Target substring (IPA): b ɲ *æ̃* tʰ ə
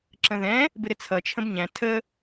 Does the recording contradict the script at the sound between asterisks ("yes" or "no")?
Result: no